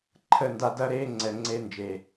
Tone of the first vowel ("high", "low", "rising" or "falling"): falling